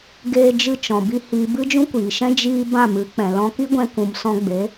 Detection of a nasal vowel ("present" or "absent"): present